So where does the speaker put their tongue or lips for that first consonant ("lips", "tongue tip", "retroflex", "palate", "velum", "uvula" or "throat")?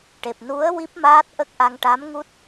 retroflex